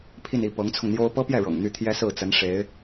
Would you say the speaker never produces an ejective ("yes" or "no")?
yes